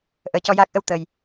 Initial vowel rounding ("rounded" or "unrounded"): unrounded